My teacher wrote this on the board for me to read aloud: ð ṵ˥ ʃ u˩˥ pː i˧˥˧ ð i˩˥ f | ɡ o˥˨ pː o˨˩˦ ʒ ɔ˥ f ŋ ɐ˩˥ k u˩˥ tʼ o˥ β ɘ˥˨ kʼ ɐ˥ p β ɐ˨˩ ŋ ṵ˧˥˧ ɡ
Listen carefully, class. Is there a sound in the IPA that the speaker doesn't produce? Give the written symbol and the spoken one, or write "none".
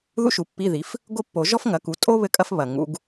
p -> f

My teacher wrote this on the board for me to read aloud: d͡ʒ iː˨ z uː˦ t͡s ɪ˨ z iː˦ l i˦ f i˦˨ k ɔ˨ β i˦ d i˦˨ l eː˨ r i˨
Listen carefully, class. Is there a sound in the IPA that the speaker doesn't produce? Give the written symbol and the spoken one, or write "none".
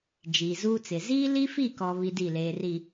none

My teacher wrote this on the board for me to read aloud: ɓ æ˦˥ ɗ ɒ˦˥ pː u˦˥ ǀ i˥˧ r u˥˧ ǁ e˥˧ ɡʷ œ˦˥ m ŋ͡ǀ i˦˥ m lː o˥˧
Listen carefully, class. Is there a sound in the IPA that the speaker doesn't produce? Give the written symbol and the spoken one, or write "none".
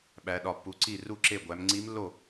œ˦˥ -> æ˦˥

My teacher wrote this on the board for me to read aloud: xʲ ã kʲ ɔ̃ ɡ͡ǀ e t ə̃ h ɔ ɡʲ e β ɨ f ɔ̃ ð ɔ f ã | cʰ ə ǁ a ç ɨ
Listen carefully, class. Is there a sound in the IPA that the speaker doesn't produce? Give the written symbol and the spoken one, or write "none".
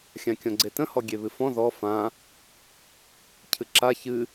ə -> ɨ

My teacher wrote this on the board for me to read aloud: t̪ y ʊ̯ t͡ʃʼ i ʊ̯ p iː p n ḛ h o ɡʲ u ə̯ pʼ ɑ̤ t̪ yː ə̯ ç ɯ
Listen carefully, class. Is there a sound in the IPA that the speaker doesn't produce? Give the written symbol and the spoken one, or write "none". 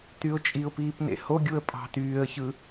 none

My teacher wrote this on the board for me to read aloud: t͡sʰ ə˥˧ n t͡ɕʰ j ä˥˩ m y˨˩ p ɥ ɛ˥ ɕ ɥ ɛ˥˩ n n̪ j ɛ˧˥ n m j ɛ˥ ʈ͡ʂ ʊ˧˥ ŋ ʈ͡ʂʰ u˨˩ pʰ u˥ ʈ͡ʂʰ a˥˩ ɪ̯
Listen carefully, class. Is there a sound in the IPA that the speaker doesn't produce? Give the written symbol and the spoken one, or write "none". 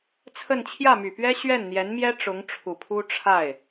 none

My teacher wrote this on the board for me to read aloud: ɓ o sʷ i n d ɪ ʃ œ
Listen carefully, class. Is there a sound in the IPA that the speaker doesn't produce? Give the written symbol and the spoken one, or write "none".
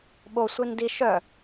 ɪ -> i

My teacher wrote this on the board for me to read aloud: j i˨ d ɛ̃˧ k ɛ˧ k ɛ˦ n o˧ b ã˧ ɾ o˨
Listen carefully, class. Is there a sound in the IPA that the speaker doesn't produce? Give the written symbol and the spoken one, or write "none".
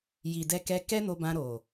ɛ̃˧ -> ɛ˧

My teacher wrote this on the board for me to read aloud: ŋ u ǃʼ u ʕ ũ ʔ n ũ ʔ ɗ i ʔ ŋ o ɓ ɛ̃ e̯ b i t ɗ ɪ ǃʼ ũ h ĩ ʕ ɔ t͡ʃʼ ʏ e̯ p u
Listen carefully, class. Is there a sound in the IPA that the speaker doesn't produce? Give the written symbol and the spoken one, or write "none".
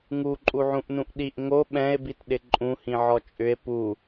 none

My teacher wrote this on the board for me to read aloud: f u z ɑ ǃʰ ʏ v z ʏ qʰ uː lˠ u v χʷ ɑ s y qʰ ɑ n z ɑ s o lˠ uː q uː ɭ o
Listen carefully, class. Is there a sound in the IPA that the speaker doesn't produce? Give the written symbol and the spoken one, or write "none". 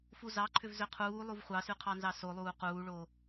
none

